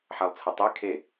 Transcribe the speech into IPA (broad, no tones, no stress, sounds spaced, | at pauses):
ħ a lˠ t͡sʰ ə tˤ e kʰ e